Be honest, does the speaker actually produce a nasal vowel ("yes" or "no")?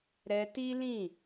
yes